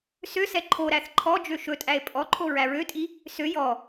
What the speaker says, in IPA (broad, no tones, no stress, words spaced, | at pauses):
søsɛ ǃʰoɾæθ ǃʰɔd͡ʒø ʃɵtʼæe̯ pʼɔǃʰo ɹæɹøtʼi | sø jɔ